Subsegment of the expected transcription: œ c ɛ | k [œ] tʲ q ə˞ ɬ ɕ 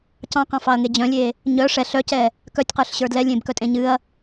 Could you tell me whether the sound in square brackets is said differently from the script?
no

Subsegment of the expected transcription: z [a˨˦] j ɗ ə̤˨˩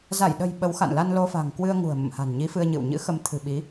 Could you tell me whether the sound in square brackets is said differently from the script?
yes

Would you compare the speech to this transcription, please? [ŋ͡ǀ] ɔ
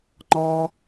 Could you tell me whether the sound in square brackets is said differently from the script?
yes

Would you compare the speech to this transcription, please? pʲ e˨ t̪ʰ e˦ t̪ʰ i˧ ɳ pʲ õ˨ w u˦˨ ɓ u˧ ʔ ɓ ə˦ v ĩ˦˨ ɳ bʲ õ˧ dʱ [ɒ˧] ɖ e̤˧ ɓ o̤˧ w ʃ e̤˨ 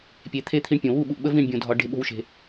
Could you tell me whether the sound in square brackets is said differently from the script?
no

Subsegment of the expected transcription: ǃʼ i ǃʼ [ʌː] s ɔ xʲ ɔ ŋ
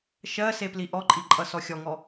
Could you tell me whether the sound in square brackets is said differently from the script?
yes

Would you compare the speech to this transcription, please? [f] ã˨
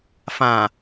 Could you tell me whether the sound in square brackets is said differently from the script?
no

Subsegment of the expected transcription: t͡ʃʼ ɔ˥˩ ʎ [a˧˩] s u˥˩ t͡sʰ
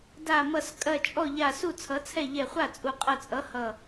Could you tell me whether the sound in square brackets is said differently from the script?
no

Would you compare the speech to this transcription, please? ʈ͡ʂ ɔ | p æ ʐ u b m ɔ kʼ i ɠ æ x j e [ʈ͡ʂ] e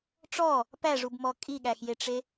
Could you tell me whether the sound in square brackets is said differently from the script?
no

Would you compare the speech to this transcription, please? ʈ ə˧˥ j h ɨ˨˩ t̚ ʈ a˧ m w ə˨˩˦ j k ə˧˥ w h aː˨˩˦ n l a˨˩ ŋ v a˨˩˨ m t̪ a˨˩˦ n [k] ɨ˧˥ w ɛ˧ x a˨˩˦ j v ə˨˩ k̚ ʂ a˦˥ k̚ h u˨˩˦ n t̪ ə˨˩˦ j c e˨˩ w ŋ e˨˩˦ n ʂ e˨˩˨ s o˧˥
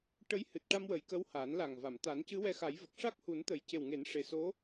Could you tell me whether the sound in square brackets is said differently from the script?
yes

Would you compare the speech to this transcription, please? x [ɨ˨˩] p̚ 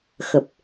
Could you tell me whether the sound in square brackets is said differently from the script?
yes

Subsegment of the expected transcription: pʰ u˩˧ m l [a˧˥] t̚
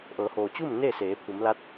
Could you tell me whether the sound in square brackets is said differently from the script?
no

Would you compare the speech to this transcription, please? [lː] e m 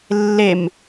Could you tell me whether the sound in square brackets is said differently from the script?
no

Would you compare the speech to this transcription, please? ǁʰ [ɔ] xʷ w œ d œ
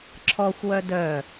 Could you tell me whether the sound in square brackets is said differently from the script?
no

